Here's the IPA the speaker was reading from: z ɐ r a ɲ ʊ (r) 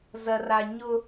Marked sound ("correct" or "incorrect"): incorrect